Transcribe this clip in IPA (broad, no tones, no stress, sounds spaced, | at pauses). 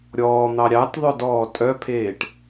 ɾʲ ɔː n̪ ɑ ɾʲ ɑ t ðˤ œ d ɔː tʼ œ pʰ eː ʈ